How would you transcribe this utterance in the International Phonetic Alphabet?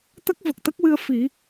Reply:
t̪ə˦˥k̚və˨˩k̚t̪ə˦˥k̚wɨ˧ə̯ fi˨˩˦

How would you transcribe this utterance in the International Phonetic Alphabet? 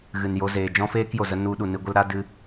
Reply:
ɣɨ˨njo˧zeː˨ d͡ʒɔ̃˦feː˦kjo˨zə˧ nu˧ɗu˨nɨ˧ɡʷə˦l ɾa˦dɨ˧

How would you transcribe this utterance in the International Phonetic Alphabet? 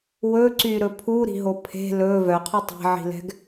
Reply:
wɵǀyɾɵ pʰuɾi̤ɦo pʰe̤ lɵ vœqʰu tˤe̤ʕi̤lɛ̤ɡ

